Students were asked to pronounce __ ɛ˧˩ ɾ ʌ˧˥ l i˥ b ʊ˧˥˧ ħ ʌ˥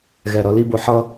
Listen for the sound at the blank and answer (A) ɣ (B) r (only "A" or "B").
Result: A